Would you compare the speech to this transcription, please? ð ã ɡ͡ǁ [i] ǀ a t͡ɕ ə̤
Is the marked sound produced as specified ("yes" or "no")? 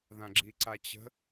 yes